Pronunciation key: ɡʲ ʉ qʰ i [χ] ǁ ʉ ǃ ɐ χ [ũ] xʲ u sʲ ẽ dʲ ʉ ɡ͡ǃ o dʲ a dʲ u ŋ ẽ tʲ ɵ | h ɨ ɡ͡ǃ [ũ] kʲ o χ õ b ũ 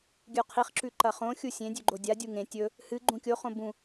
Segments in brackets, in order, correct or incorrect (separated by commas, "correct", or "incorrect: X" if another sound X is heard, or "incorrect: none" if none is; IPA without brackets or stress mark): correct, incorrect: õ, correct